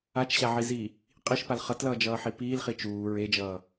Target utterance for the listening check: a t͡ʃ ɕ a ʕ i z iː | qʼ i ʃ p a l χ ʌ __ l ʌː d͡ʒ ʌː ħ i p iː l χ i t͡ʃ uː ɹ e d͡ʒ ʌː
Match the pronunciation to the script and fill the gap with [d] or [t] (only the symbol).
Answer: t